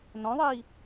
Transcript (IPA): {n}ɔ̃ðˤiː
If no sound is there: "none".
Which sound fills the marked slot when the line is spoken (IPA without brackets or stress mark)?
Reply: n